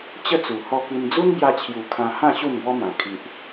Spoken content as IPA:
t͡ɕ ə˥˧ t͡s u˨˩ h ɔ˧ k i˧ n d͡z u˦ n b j a˧ t͡ɕʰ j u˨˩ kʰ ã˧ h ã˥˧ ɕ u˥˧ n b ɔ˦ m ã˨˩ kʰ i˨ ʔ

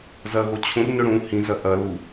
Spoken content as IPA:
z ɐ ɣ o t͡ɕʰ ũ r n ɵ ɽ ũ h ĩ z ɐ ʔ ɐ l u

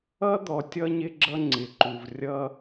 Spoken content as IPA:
ʌ˦ d̪ ɔ˨ tʲ ʌ˦ ɲ ɪ˦ ɡ͡ǁ ʌ˦ ŋ͡ǀ ɪ˨ ǃ u˨ v rʲ ʌ˦

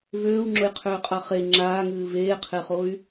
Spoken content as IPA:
v øː u̯ ŋ͡ǁ ʊ j qʰ øː qʼ a χ e ŋ͡ǁ aː ŋ ɨː v eː qʰ e χ o y̯

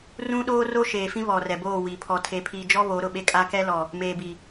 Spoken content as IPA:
r ũ˦ ɗ oː˦ r o˦ ʃ eː˨ f ĩ˦ β ɔ˨ r ɛ˨ b oː˦˨ w i˨ pʰ ɔ˨ tʰ e˨ pʰ iː˨ d͡ʒ ɔ˦ β o˨˦ ɾ ʊ˨ ɓ e˦ kʼ a˦ k ɛ˦ l ɔ˨ | m eː˨ b i˨

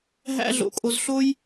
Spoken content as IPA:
ɦ æ̰˦ ɮ o̰˧ kʼ o˧ z ɬ o˦ j

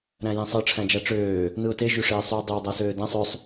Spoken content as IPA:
ɾ æ̃ j ĩ sˤ ɯ ʈ͡ʂʰ æ̃ d͡ʒ æ ʈ͡ʂ øː | n ɯ ʊ̯ t e ʒ y ʂ eː sˤ yː dˤ y w dˤ æ s øː d æ̃ sˤ ø sˤ

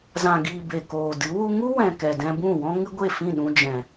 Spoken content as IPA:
z ã˨ ɡ iː˨ b e˨ k oː˨ d ɨ˨˦ w u˧ ŋ u˦ w ɛ̃˨ k ɛ˨ d ɛ̃˧ b ũ˦˨ w ɔ̃˦ ŋ ɨ˦ ɡʷ e˦˨ f ĩ˦˨ ɗ ũ˧ d͡ʒ ɛ̃˨

